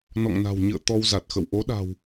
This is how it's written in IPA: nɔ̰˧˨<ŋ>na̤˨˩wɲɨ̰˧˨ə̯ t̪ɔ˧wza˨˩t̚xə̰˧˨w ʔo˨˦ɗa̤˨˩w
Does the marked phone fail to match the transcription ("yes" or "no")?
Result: no